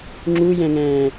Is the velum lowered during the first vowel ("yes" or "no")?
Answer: no